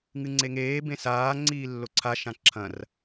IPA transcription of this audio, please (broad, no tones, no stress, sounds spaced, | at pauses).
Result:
ŋ ɨ ŋ͡ǀ e ŋ eː b ẽ s aː ŋ͡ǀ iː lː o ǀʰ a ʃ ã ǁʰ ɐ̃ r